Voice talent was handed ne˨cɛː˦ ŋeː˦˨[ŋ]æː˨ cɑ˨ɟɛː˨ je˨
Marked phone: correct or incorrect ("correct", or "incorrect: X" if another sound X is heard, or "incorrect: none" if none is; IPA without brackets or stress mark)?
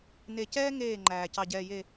incorrect: ŋ͡ǃ